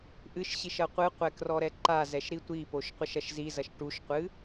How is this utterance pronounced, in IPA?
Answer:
ʔ ɨ ʃ ɕ i ʃ ɐ qʷ ɨ qʷ ɛ k r ɔ ɾ ɛ ǃ a z ɛ ʃ ɾ i tʷ i p o ʃ qʷ ɘ ʃ ɐ ʃ z i z ɐ ʃ ʈ u ʃ qʷ ɨ

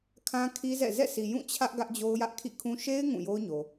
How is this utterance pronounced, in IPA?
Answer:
kʰ ã˦ kʰ i˦ z ɛ̰˦˨ z ɛ̰˦˨ s i˨ j ũ˦˨ t͡ɕʰ ä˦ ʔ ɡ ä˦ ʔ d͡ʑ o˦ ʊ̯ j ä˦ ʔ kʰ ḭ˦˨ kʰ ũ˦ ʃ e˦ ɪ̯ ŋ ũ˦˨ j o˦ ʊ̯ ɲ o˨

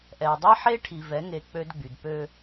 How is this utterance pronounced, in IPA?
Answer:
ʔ ɛ˨ dˤ e˦ ħ e˦ ʈʰ i˨ v ɛ˨˦ ŋ e˨ k͡p ø˦ d ɡ͡b y˨ d p ø˦

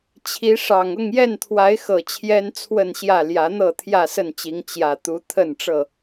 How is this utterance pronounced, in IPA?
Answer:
t͡ɕʰ i˨˦ ʂ ɑ˨˩ ŋ ʊ˥˨ ŋ j ɛ˥˨ n t̪ʰ w a˨˦ ɪ̯ x ɤ˨˩ t͡ɕʰ j ɛ˦ n t͡sʰ w ə˥˨ n ɕ j ä˥˨ l j ä˨˦ n̪ ɤ˥˨ t̪ʰ j ä˥˨ s ə˥˨ n t͡ɕ i˨˦ ŋ t͡ɕ j ä˨˩ t̪ u˨˦ t̪ʰ ə˥˨ n ʈ͡ʂ ɤ˥˨

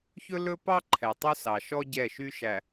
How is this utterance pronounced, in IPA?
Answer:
ç ɵ˦ l ɵ˦ p ɑ˦ ǃʰ ɛ˨ tˤ u˦ s ɑ˨ ʃ ɔ˦ ɟ ɛ˦˨ ʃ y˦ ʃ æ˨

